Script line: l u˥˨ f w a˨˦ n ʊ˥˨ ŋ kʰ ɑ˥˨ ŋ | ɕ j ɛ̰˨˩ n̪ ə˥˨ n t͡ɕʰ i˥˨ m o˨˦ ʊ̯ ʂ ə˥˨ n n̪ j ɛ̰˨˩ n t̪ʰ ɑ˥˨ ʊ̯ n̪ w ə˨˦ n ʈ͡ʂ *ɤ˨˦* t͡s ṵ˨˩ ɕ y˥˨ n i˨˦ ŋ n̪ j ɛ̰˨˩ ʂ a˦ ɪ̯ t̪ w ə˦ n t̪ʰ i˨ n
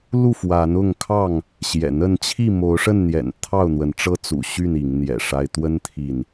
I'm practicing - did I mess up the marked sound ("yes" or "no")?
yes